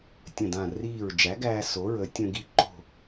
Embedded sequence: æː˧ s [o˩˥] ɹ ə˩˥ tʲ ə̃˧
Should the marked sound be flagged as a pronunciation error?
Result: no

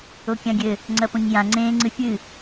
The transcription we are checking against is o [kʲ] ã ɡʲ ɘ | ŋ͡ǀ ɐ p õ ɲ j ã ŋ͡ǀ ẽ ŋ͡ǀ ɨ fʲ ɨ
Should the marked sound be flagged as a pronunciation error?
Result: no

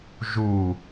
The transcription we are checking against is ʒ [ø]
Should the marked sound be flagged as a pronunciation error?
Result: yes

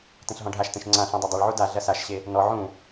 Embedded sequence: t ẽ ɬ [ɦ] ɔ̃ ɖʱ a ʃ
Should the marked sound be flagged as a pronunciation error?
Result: no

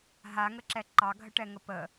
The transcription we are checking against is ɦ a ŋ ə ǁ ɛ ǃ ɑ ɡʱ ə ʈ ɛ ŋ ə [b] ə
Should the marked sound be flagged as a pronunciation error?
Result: yes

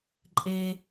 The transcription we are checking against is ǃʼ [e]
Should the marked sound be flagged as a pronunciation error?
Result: no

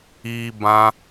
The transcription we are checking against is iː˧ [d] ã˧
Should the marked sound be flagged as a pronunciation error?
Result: yes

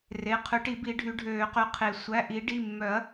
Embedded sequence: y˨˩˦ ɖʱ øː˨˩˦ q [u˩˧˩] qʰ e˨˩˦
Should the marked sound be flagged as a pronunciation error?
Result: yes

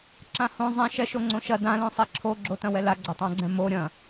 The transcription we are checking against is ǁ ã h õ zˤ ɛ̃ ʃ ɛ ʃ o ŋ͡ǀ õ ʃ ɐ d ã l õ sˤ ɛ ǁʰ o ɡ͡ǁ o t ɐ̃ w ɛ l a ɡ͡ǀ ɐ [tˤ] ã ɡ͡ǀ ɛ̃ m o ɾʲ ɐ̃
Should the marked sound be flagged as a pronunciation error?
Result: no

